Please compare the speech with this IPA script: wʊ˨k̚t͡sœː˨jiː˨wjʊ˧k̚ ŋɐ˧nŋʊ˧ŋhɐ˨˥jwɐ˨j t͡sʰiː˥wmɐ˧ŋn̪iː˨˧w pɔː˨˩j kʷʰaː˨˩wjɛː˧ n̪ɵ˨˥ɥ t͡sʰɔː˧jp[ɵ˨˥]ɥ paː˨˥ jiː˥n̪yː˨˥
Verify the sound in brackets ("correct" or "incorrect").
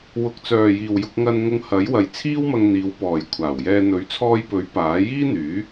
correct